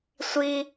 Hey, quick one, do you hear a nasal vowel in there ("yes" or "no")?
no